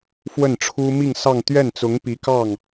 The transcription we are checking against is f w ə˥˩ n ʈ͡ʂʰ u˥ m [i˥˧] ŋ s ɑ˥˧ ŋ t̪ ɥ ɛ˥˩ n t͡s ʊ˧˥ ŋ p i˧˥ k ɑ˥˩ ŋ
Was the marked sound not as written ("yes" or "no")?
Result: no